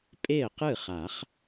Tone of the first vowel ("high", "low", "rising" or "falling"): falling